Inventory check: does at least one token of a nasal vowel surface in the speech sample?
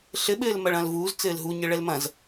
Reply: yes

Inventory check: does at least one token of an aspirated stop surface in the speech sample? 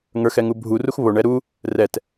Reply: no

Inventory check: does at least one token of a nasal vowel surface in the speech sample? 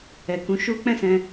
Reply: yes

